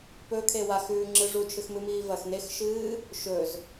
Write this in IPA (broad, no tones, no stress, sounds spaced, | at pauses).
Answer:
p ɵ kʰ e w a x ʉː ŋ͡ǁ ɨ ʐ u t͡ʃʰ ɨ x m ɨ m iː v ɐ x n e x ʃ ɨː | ʃ ɵ z